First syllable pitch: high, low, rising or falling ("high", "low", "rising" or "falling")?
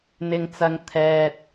low